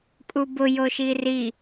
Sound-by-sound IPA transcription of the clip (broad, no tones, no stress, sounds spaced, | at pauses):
kʼ u b ʊ j o ʃ i r i